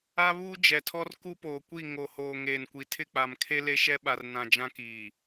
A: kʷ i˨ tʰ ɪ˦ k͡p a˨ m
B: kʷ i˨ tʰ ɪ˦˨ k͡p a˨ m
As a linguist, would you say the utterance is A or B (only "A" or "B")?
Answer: B